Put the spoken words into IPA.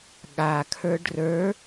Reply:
ɠ a kʰ ə˞ ɖ r ə˞

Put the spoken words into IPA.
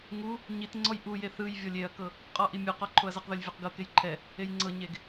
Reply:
ŋ u | ɲ i t ŋ͡ǀ ɔ j ʔ u j e θ ɯ j vʲ ɔ lʲ e ɐ̯ k ɤ | qʼ ɔ ʔ i mʲ u q ɔ ǃʰ o ɐ̯ z ɤ q ð o lʲ vʲ o q ɡ ɤ k e j ǃʰ ɛ | e j ŋ͡ǀ ɤ ɲ e ɡ

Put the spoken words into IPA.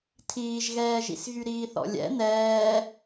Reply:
tʰ iː ʒ ɣ ɛː ʒ ḭ s ɣ y ɾ iː θ ɔ̰ lʲ ɛ̰ n ɛː

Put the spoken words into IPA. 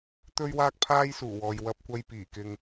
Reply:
t̪ ɵ˥ ɥ w aː˥ k̚ pʰ aː˥ j s uː˨˩ w ɔː˨ j w ɐ˧ p̚ kʷ ɐ˧ j p iː˨˩ k ɪ˧ ŋ

